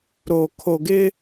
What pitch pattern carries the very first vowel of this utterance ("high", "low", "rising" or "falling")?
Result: low